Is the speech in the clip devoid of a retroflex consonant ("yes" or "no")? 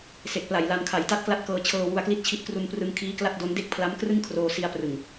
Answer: yes